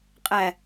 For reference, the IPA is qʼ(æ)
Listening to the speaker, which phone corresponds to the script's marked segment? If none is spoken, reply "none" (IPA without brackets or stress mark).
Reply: æ